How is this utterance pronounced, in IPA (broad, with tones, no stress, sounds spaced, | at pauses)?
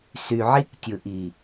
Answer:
s y˨ ʕ i˦ k tʲ ɯ˨ ʔ i˨